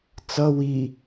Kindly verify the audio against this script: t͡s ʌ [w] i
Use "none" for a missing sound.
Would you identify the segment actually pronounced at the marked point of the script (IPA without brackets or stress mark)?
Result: w